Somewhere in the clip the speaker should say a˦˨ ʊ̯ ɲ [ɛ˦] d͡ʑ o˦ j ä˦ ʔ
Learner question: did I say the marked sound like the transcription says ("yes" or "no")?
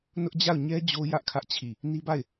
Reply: yes